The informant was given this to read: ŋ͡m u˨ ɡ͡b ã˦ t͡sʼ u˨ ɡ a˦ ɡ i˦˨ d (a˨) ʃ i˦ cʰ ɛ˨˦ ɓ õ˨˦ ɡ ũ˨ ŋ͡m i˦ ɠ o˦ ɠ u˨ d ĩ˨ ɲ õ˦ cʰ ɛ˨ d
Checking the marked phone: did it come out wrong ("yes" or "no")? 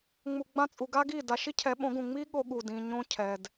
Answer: no